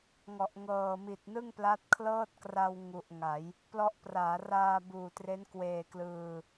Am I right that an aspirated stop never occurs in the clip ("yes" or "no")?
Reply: no